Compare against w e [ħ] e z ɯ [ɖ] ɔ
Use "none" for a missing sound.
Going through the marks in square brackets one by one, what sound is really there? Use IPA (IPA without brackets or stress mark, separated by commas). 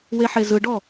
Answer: ħ, ɖ